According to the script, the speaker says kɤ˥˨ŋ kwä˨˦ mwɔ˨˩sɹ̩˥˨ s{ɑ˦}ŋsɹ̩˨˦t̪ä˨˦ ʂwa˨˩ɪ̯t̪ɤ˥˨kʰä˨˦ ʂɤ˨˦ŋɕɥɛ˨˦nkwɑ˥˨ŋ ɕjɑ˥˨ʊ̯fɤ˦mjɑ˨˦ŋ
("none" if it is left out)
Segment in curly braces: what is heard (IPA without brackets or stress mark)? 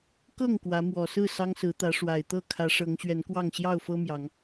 ɑ˦